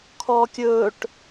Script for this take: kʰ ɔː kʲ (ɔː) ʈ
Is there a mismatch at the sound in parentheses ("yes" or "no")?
yes